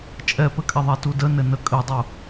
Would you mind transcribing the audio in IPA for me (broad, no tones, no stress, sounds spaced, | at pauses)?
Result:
t͡ʃʼ ɛ p ɘ kʼ ɛ ðˤ ɛ t u d ə n ɘ n ə kʼ ɘ dˤ u